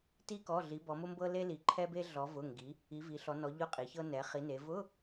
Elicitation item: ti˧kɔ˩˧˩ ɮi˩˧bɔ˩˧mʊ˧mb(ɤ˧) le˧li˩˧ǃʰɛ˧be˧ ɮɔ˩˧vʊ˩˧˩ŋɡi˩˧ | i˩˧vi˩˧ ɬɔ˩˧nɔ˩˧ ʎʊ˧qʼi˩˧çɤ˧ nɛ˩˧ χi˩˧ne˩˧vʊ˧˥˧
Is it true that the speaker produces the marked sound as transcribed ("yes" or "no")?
yes